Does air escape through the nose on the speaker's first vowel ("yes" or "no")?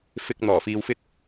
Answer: no